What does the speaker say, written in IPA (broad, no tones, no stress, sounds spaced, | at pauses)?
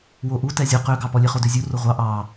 w o ʔ u t ɛ zʲ ɔ q ø ɡ ɑ p ɔ lʲ e χ o d ø zʲ u r o ʁʷ ɑ ʔ ɑ